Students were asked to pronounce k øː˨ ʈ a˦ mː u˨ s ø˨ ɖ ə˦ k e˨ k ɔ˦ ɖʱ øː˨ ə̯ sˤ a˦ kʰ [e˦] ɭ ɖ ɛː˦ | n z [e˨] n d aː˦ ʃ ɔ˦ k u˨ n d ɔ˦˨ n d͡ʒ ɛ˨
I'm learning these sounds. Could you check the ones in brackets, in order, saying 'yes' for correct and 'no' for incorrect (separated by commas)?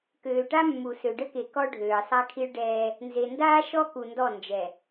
no, yes